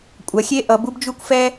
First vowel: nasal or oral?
oral